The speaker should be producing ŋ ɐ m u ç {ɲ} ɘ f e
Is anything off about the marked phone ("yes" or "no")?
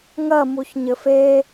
no